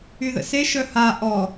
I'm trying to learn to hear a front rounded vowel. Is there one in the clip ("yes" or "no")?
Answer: yes